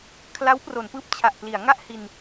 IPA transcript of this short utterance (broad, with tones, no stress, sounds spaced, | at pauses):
kʰ l a˦˥ w p r o˩˦ n p ɯː˦˥ p̚ t͡ɕʰ a˨˩ ʔ p l i˩˦ a̯ ŋ a˥˩ ʔ h i˧ n